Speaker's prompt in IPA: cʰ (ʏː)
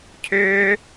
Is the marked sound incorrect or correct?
correct